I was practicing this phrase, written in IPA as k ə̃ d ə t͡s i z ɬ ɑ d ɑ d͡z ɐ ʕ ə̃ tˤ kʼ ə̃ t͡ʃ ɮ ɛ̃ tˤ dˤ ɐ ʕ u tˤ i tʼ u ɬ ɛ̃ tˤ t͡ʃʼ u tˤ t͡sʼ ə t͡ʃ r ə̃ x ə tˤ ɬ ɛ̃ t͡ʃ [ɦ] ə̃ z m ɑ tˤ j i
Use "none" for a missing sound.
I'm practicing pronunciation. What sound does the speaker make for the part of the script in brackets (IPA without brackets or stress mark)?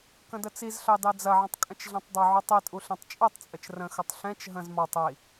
ɦ